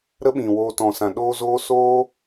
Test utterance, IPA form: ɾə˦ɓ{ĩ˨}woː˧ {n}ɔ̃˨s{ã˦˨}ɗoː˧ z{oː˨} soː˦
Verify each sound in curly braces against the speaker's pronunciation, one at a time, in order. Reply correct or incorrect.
correct, incorrect: t, incorrect: ã˨, incorrect: oː˦

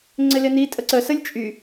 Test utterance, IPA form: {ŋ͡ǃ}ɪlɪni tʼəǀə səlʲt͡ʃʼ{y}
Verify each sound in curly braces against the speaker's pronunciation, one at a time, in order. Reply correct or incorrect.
incorrect: ŋ͡ǀ, correct

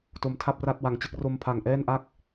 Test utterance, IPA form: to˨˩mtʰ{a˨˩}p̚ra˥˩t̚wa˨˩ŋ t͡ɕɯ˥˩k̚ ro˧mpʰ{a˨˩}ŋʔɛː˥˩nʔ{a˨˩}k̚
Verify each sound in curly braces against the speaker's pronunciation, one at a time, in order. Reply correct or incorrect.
incorrect: a˥˩, correct, incorrect: a˥˩

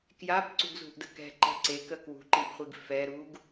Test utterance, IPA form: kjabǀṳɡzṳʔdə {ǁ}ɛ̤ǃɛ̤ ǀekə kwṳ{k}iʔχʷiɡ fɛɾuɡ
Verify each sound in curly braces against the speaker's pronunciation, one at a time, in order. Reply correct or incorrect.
incorrect: k, incorrect: ǃ

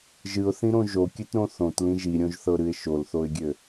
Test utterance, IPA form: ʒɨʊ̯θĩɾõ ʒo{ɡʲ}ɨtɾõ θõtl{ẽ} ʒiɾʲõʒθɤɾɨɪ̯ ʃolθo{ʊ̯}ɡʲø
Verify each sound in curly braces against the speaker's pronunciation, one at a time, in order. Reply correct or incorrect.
incorrect: kʲ, incorrect: ĩ, incorrect: ɪ̯

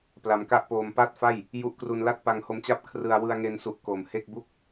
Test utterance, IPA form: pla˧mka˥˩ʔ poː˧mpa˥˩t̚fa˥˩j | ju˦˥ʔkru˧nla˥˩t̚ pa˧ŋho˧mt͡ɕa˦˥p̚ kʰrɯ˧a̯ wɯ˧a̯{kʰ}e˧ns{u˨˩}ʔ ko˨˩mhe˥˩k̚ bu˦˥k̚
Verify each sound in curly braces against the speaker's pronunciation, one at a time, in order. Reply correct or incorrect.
incorrect: ŋ, correct

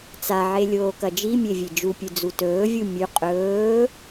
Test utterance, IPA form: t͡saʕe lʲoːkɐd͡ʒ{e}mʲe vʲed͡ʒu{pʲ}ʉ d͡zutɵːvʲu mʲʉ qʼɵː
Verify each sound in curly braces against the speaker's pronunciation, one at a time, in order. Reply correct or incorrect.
incorrect: i, correct

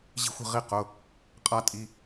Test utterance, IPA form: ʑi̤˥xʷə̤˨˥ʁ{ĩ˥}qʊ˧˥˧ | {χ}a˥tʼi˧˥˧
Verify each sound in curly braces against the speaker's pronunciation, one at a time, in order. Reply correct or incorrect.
incorrect: i˥, incorrect: qʼ

